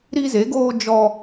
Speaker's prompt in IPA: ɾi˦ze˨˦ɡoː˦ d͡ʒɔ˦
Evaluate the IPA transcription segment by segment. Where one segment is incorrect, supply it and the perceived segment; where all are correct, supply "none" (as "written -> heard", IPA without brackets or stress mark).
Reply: none